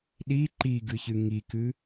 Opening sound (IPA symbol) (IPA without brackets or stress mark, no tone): ɗ